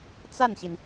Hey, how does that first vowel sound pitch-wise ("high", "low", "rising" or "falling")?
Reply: falling